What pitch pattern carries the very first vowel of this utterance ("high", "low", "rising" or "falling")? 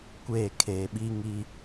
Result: falling